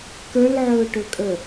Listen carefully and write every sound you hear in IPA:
k ə˞ l ʕ ɵː ʈ ɵ kʼ ə

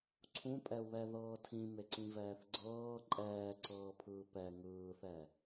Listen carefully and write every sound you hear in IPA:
ǀʰ ũ pʼ ɛ u̯ β ɛ ð ɤː tʰ ĩ m e ǀ ĩ v ɛː θ ɡ͡ǀ ɤː ǃʼ ɛː ǀ ɤː pʰ ɯː p ɛ ŋ ɯː θ ɛ

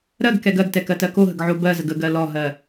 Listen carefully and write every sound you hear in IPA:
ɾ ɜ ɡ k ɛ ɡ ɜ ɡ t ɛ k ɜ t ɜ k o ɦ ə ɡ ʕ o b ɜ z ə ɡ ə ɡ ɜ l ɔ ɦ ɜ

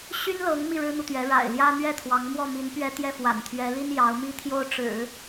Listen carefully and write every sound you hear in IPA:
ɕ y˥ n l ɤ˧˥ ŋ m i˥˩ ɻ ɻ̩˥ n̪ u˨ t̪ ɥ ɛ˧˥ ɻ a̰˨˩ ɪ̯ l j ä˥ n̪ ɥ ɛ˥˩ t̪ʰ w ɑ˧˥ ŋ m w ɔ˥˩ m i˧˥ n p ɥ ɛ˥ t̪ j ɛ˥˩ f w a̰˨˩ n t̪ʰ ɥ ɛ˧˥ l i˥ n j ɑ˧˥ ʊ̯ m i˥ t̪ʰ j o˥˩ ʊ̯ ʈ͡ʂ ɻ̩˨˩˦

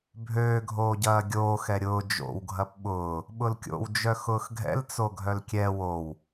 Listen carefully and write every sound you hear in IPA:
bʱ øː ɡʱ oː ɟ ɐː ɡʲ oː x ɛ ɾʲ ʊː d͡ʒ o̰ w ɡʱ ɐ p ɓ ʊː | ɓ ʊ l kʲ o̰ w d͡ʒ œ x ʊː x ɡʱ ɛ̰ l t͡s o ɡʱ œ l kʲ ɛ w o w

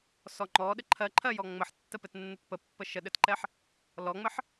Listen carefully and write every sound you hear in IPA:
s ɔ ŋ͡ǃ ɔ ɗ ɘ ǃʰ ɜ ǃʰ ɜ j ɔ ŋ͡m ə ħ tː ə p ɘ t nː ɘ t p ə pː ə ʃ ə ɗ ɘ t ǃ ɛ ħ | l ɔ ŋ͡m ɘ ħ

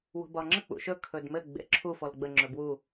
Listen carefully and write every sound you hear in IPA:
w o̤ b ɒ ŋ͡ǁ ə k͡p ṵ ʃ ɵ kʰ ɵ d m ɘ ɡ͡b ḛ ǁʰ u f ɔ l ɡ͡b ə ŋ͡ǁ ɵ b w u

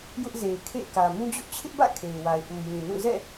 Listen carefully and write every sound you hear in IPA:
j ʊ˦ ʔ z e˨ ɪ̯ kʰ ḛ˦˨ ɪ̯ k ä˨ m ũ˦ d͡ʑ ʊ˦ ʔ t͡ɕʰ ɪ˦ ʔ b ä̰˦˨ kʰ e˨ ɪ̯ w a˨ ɪ̯ ʔ u˨ j ĩ˨ n ũ˦˨ z ɛ̰˦˨

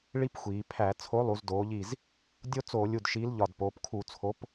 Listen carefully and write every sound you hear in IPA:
ɭ i˦ p xʷ iː˩˧ pʰ æ˧˩˧ t͡sʰ o˨˥ lˠ u˩˧ z d oː˩˧ ʎ i˧˩ z | dʲ o˦ t͡s oː˧˩˧ lʲ u˧˩ d ʃ iː˨˥ l ʎ ɒ˧˩ d p oː˩˧ p kʰ u˧˩˧ t͡sʰ o˨˥ p

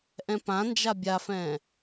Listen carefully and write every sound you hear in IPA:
ʔ ɛ̃ p ã n d͡ʒ a bʲ a f ɛ̃ː

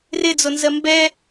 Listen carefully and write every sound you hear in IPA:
r ɪ d͡z o n z ɜ m b ɛ

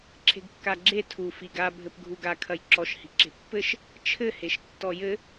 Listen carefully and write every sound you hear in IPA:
ǁʰ e̤ ɡ kː a ɡ͡ǁ e tʰ u f i ɡ a bʱ ɘ p ɡʱ u ɡ a kʰ ɐ j ǁ ɔ ʃ h i̤ ǁ e̤ pː ɘ ʃ | t͡ʃʰ ɘ h e ʃ tː ɔ j ɘ

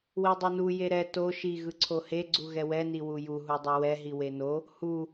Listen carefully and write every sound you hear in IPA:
w i dˤ e n u j e ɾ ɛ t o ʃ i ɣ ɯ ǀʰ o h e ɡ͡ǀ u ɣ ɛ w ɛ n i w u j u ɦ u dˤ u w ɛ ɦ i w e n o | h u

